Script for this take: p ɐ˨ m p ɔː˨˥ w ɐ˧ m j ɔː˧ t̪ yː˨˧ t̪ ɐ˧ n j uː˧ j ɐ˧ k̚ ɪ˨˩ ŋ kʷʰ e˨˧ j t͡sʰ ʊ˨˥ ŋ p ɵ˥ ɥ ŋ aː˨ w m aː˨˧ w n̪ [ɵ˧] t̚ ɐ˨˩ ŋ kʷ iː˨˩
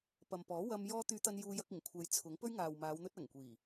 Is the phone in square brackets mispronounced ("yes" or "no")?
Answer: no